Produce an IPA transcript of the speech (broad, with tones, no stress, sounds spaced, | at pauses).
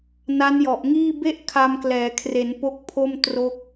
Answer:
n a˦˥ n j ɔ˨˩ ʔ ŋ iː˥˩ b e˥˩ ʔ kʰ a˧ m k l ɛː˩˦ kʰ r e˩˦ n p o˦˥ k̚ pʰ o˥˩ m t r o˦˥ k̚